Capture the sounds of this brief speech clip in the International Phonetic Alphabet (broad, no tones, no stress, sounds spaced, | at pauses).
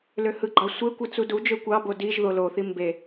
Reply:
l ø h ɯ ɡ͡ǃ ɑ sʷ e kʷ ɯ t͡s u d u d͡ʒ ø kʷ ɑ b o d i ʒ ð o l o θ i m b e